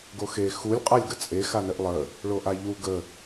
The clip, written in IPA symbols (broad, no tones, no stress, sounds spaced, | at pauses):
ɡ o x e x u lʲ qʼ a lʲ ɡ ə t͡sʼ e x a n ɘ ʔ lˠ ə | ɭ o ʔ a ʎ u ɡ ə